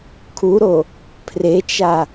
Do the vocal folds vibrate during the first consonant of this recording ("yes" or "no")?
no